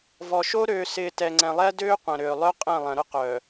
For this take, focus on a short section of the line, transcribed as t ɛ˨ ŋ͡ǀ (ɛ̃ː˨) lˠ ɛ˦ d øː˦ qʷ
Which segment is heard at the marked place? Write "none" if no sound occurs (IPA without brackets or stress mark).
ɛ̃˨